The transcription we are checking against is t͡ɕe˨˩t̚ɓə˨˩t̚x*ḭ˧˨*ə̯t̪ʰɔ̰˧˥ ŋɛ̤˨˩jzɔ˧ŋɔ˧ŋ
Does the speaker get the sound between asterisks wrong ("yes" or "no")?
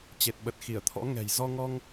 yes